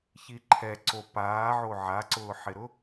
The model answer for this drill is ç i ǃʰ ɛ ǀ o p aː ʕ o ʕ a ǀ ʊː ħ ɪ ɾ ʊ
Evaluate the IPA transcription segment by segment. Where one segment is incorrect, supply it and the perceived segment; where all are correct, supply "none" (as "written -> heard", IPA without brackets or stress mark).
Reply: none